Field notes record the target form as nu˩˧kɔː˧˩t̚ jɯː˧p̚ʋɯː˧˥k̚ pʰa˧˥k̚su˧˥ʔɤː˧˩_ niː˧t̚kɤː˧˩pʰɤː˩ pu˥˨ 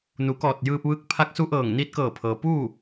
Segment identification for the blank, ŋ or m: ŋ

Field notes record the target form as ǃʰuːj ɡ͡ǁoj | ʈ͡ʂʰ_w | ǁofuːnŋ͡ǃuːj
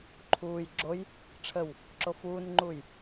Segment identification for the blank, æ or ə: ə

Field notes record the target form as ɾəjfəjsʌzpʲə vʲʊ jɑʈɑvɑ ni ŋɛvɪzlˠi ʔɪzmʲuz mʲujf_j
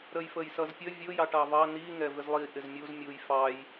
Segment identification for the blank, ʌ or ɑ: ɑ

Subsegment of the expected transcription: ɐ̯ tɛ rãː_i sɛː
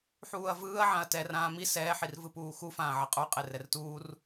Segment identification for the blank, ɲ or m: m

